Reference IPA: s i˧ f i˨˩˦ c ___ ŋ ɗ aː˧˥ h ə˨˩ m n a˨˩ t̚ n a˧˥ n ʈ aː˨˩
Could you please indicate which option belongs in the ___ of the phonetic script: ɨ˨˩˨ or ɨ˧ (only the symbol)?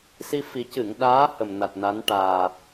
ɨ˨˩˨